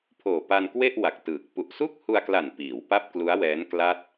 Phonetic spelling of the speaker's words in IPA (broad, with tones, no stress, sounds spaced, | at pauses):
pʰ oː˨˩ p a˧ n k w e˥˩ ʔ w a˨˩ k̚ t ɯː˨˩ k̚ p u˨˩ ʔ s u˥˩ k̚ h u˧ a̯ k l a˨˩ n p iː˩˦ w p a˥˩ p̚ k l u˦˥ a̯ w ɛː˦˥ n k l a˥˩ t̚